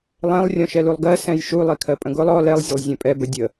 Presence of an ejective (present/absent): present